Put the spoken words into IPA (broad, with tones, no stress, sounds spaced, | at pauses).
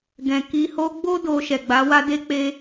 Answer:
ɡ ɛ̃˧ k i˧ h o˦ ɡ͡b o˦ d o˧ ʃ ɛ˨ ɡ͡b a˨˦ w a˦ d e˦ k͡p e˦